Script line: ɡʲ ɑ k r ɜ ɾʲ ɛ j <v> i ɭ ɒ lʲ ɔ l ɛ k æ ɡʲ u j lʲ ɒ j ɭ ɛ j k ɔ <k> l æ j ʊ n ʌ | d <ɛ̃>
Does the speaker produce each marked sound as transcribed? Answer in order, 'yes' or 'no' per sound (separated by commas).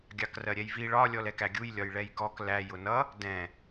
yes, yes, yes